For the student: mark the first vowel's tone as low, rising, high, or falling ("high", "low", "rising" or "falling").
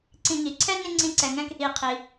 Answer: low